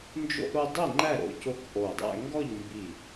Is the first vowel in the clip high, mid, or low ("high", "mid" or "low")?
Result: mid